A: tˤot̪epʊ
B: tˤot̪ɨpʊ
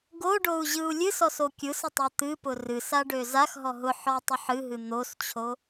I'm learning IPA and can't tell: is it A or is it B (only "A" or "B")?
B